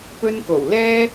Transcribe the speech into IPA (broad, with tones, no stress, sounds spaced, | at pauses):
p ɵ˧ n k o˨˩ w l ɛː˥